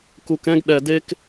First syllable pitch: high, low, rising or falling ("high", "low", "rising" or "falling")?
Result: low